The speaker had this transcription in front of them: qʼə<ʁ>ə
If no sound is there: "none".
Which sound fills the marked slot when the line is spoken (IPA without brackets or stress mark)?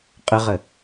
ʁ